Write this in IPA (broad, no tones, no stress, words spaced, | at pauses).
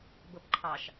bɤpǃʰɑʃ